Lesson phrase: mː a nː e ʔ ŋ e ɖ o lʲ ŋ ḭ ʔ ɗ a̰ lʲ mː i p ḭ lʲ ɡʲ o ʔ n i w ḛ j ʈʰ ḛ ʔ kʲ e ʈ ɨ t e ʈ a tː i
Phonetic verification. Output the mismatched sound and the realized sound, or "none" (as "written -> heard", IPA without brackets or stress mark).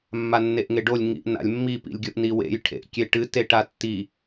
ɗ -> n